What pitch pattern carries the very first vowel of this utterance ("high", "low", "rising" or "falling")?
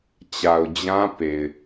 low